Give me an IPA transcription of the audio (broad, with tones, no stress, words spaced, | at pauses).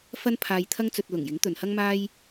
fɐ˥npʰaː˧jt̪ʰɐ˥ŋt͡sɵ˧t̚ lʊ˨˩ŋjɪ˨˥ŋ t̪ɵ˨nhɐ˥ŋmaː˥j